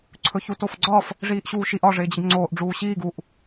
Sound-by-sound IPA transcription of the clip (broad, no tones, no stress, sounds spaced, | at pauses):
ǀʰ ɵ ç u t o f ɡ͡ǀ ɒː f | ʐ iː ʔ ɕ uː ʃ i ʔ ɒ ʐ ɪː d͡ʑ ɪ ɡ ŋ͡ǀ oː ʔ ɖ͡ʐ uː ɕ iː ɡ u ʔ